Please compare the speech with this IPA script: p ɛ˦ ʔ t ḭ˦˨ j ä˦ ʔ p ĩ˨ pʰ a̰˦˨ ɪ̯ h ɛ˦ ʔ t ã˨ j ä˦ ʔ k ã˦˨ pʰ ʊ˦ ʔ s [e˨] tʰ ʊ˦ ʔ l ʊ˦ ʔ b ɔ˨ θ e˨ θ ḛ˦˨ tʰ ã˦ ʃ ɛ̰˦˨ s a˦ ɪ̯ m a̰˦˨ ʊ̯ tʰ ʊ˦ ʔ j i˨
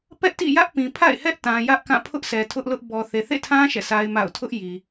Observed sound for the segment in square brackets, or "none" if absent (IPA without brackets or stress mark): ɛ˨